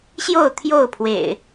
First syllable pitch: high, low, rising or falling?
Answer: falling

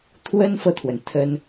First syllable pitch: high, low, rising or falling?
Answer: high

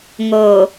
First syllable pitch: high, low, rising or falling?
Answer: low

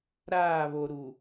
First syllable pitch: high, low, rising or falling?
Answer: falling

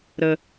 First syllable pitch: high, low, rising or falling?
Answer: low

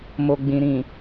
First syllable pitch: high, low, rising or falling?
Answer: low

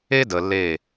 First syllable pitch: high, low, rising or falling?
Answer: high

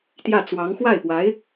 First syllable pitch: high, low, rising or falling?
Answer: falling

